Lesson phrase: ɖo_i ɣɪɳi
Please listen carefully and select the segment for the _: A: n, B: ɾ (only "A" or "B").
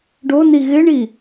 A